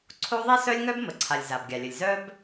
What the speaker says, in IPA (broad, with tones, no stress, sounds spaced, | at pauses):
ǀʰ o˥ ðˤ i˥ s œ˥ lʲ ŋ œ˥ b m ə˩ ǀʰ a˩ lʲ z a˩ b ɡʲ a˩ lʲ ə˩ lʲ z œ˥ b